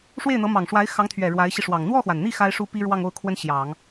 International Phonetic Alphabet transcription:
ʂ w e˥˩ ɪ̯ n̪ ɤ˧˥ m ɑ˨˩ ŋ ʂ w a˧˥ ɪ̯ x ɑ˧˥ ŋ t̪ʰ ɥ ɛ˨˩ ɻ w a˧˥ ɪ̯ ɕ i˧ ʂ w ɑ˨˩ ŋ n̪ w ɔ˥˩ x w a˩ n n̪ i˥˩ x a˥ ɪ̯ ʂ u˥ p i˥ ɻ w ɑ˥˧ ŋ o˥˩ ʊ̯ kʰ w ə˥ n ɕ j ɑ˨˩˦ ŋ

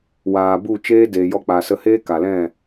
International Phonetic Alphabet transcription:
w aː˨ b u˦˨ t͡ʃ eː˦ d eː˨ j ɔ˧ k͡p a˨ s ə˧ h eː˦ k a˨ l ɛ̃˦˨

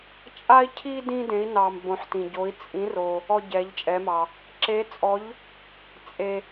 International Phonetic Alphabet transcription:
t͡ʃʼ a˥ i̯ cʰ i˥ d ĩ˥ d ẽ˧˥ i̯ n ɑ˧ m b õ˧˥ ħ t ĩ˧ ɟ o˧˥ i̯ t͡sʼ ĩ˧˥ r o˧ | ɔ˥ ɟ ɛ˧˥ ʎ t͡ʃʼ ɛ˧˥ m ɑ˧ | ǁ e˧˥ t͡sʼ ɔ˧˥ ʎ | t͡sʼ e˧

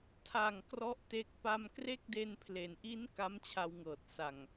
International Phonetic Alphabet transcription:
tʰ a˨˩ ŋ k r ɔ˥˩ ʔ t e˦˥ k̚ p a˧ m k r e˥˩ k̚ d e˧ n pʰ l e˩˦ n ʔ i˦˥ n k a˦˥ m t͡ɕʰ a˧ w ŋ ɤː˨˩ t̚ s a˨˩ ŋ

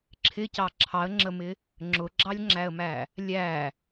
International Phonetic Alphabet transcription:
ǁʰ ɪ c ɑ ǁʰ ɑ ə̯ ŋ͡ǁ ə m ɪ | ŋ͡ǁ ʊ ɡ͡ǁ ɑ lʲ ŋ͡ǁ æ ə̯ m æ | lʲ æ

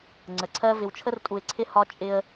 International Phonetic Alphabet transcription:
ŋ͡ǀ ə˨ ǀʰ ɜ˦ v ɪ˨ w t͡ʃʰ ə˦ r tʼ u˨ ɪ̯ ǀʰ ɪ˦ h ɒ˦ t͡ʃʼ ɪ˦ ə̯

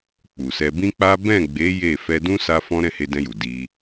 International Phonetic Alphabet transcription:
k͡p u˨ s ɛ˧ b ĩ˦ k͡p a˦ b ɛ̃˦˨ ɡ͡b e˨˦ j e˦˨ f ɛ˧ d ũ˦ s a˦ f ɔ̃˦ ɾ ɛ̃˦˨ h e˧ d ɛ̃˧ j u˨ d i˧

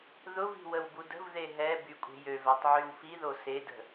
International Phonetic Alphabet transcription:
ð ʊ v i̤ w ə w b u d ə̤ v ð e ɦ ɛ b y kʷʼ e̤ j ø v ɛ tˤ ʕ y w f i ð o s e d ə̤

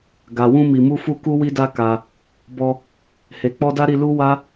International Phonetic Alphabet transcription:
ɡ a˨ w ũ˧ m i˨ m u˧ f u˧ k u˧ w i˧ d a˧ k a˧ | b ɔ˧ | h e˨ k͡p ɔ˧ d a˦ ɾ i˧ l u˦ w a˦

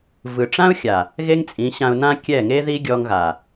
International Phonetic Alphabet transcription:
v ɯ˨ ʈ͡ʂ ã˦ ʊ̯ xʲ a˨ | ɣ e˦ ŋ t͡sʼ ĩ˨˦ ɕ ã˧ ʊ̯ n ã˦ kʲ ɛ˦˨ ŋ e˦ ð i˦ ɡʲ ɔ˧ ŋ ɣ a˨

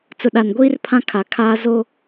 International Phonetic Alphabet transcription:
t͡s ʊ˨ ɗ a˨ n ɡʷ iː˦ r pʰ ã˦ kʰ a˨ kʰ aː˦ z o˦

